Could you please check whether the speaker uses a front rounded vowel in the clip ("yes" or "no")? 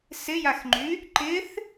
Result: yes